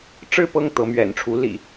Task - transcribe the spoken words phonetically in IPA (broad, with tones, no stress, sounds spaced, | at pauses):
ʈ͡ʂ ɻ̩˥˨ p ɤ˥˨ ŋ t̪ ɤ˨˦ m ɥ ɛ̰˨˩ n ʈ͡ʂʰ u˨˦ l ḭ˨˩